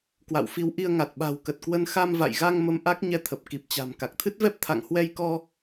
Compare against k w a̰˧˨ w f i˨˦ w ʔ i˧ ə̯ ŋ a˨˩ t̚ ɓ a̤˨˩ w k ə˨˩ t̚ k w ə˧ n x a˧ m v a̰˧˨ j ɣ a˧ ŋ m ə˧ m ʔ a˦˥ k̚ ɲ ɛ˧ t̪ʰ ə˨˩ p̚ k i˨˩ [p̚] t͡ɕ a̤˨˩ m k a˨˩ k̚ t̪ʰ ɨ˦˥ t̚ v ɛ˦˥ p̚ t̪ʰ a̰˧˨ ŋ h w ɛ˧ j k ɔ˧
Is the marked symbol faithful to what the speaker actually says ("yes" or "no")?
yes